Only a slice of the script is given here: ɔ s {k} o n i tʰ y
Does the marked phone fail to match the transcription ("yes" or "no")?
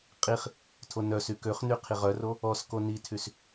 no